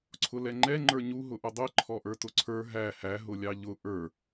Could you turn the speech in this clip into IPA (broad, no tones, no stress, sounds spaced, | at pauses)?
ǀʰ ʊ l ɛ ŋ͡ǃ ɛ ŋ͡ǃ ə˞ ɲ u ɦ ʊ ʔ ʊ dˤ i ǃʰ ɔ ʔ ə˞ t ʊ ǀʰ ə˞ ɦ æ h æ ɦ ʊ lʲ ɑ ʎ ʊ ʔ ə˞